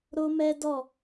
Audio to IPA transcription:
ɾo˦mɛ˦ dɔ˦˨

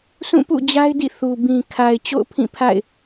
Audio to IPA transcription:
sũ˦˨pṵ˦˨d͡ʑa˦ɪ̯dḭ˦˨ θu˨ bĩ˨kʰa˨ɪ̯ t͡ɕo̰˦˨ʊ̯pʰĩ˦˨pʰa̰˦˨ɪ̯

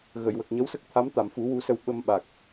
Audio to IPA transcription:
ɣə˨˩˨jwə˨˩k̚ ɲə˧˥wsə˦˥k̚t̪ʰa˧˥m t̪a˨˩˨mfu˨˩˦ wu˧˥sə˧w ɓə˧mɓa˨˩k̚

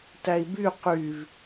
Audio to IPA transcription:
tæi̯by qyv

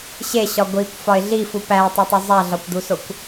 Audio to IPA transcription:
ɕeɕɒ ɡʷikʷfɒɪ̯ ɮifu pæʊ̯tˤetˤo zˤæɮɒkʷd̪usokʷ

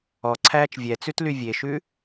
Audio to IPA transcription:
ɔǀʰæːt͡ʃ vʲɛt͡sʉtly vʲeʃʉ

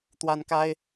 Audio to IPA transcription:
t̪wa˥nka˥ɪ̯

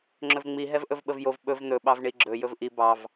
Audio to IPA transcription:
ŋ͡ǁɵvŋ͡mi ɦɛvʔɵvɓəvjov ɓɵv n̪ɵ ɓɑvɳiɡ͡ǁɵ jɵvʔi bɑv

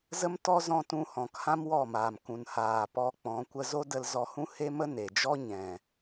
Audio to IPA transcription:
zə˦mtɔ˦zɔ̃˧ tũ˧hɔ̃˨khã˦m wɔ˦˨maː˨mkũ˨n haː˨pɔ˧k͡pɔ̃˨˦ kʷə˧zo˦də˧l zɔ˧hũ˦he˦mə˦ ne˨d͡ʒɔ˦ ɲɛ̃˨

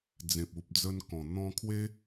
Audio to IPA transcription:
d͡zẽ˨p̚u˨p̚d͡zə˧nkɔ̃˨˩ n̪ɔ̃˧kʰwe˦

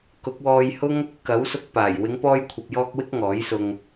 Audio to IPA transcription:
kʊ˨˥k̚wɔː˧jhʊ˥ŋ | kɐ˨˥wsʊ˧k̚paː˨˩j wɪ˨˧ŋpɔː˧jkʷʰɐ˨p̚jɔː˧k̚ wɪ˥k̚ŋɔː˨˥jsʊ˧ŋ

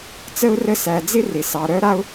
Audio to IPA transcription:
t͡sə˦ʊ̯rə˦sæ˧ d͡zɪ˦ rɪ˧sɑ˧ ɾœ˦ɾa˦ʊ̯

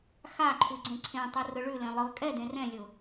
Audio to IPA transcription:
xaǃʰʉ ɡ͡ǀẽǀʰẽtˤɯ rʊɭʉlẽ lˠɤ kʼɛdẽ rɛ̃lʲʊ

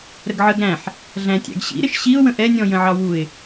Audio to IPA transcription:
ɾəɡʕəɡ ɾæ̃ħ | ɮæ̃tʲæ̰ɡɕḭɾɪʃ ɕiʊ̯wə̃ ʔɛnʲɔ̃ jə̃ʕɑwuɪ̯

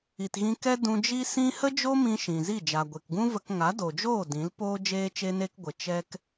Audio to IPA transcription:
i˨tɣĩ˧kɛ˦ dũ˧d͡ʒi˦ sĩ˦ hə˦d͡ʒo˦mĩ˧ ʃĩ˨zi˦˨ d͡ʒa˨ɡʷe˨kɡũ˦və˧k ŋa˨˦do˨d͡ʒoː˦˨ dĩ˨˦lpoː˦ d͡ʒeː˦t͡ʃe˦ne˦kɡʷə˨˦ t͡ʃɛ˧k

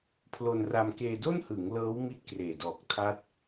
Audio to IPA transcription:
pʰlo˧nra˧mkeː˧ do˥˩nhɯ˩˦ŋ lɤː˦˥w mi˥˩t̚kreː˨˩ dɔː˨˩k̚tʰa˦˥t̚

